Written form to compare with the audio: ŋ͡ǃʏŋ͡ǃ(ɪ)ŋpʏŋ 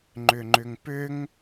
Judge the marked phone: incorrect: ʏ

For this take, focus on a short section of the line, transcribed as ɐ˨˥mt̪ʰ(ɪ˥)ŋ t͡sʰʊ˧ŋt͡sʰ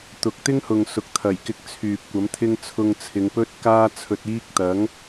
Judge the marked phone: correct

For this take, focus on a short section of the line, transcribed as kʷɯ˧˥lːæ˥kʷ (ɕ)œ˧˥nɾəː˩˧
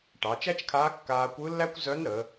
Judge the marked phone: incorrect: z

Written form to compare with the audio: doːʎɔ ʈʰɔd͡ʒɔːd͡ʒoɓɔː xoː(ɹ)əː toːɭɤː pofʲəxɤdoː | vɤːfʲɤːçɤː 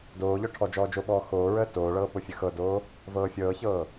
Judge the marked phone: correct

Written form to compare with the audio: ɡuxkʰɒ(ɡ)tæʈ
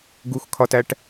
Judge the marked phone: incorrect: none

